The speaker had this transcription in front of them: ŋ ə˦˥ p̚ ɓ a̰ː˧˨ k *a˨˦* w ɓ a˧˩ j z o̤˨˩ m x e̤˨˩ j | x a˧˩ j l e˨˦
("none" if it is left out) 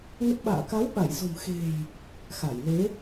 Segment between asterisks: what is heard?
a˨˦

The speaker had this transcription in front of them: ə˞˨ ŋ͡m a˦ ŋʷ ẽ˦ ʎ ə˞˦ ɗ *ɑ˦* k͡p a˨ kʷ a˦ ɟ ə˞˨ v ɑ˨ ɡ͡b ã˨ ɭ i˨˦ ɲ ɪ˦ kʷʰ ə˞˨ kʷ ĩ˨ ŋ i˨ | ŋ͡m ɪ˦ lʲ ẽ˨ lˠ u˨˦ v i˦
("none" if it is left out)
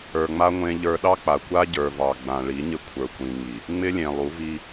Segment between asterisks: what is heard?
ɑ˦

